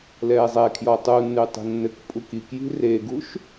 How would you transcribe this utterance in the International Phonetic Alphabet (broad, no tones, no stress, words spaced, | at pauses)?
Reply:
lɛːzˤɛkʰjɔ tˤunːʉ tˤi̤nːɘkpʼuk ikji̤ reɡuʃ